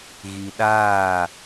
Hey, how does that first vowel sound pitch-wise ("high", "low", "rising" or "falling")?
low